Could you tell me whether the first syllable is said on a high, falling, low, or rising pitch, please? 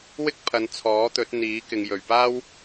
high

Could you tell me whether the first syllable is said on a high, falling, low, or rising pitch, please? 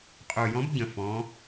low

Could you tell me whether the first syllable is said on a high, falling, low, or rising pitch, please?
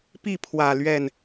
falling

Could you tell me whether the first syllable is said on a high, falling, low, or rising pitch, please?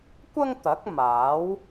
high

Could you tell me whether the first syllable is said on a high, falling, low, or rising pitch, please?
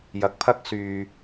rising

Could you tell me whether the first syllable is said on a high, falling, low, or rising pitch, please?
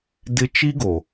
high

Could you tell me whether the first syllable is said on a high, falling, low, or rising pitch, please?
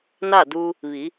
falling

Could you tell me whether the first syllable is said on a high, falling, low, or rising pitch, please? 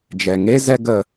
low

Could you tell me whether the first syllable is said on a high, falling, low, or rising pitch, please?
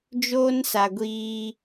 high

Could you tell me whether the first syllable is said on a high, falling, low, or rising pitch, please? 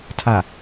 low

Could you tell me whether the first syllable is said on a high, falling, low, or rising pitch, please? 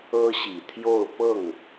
high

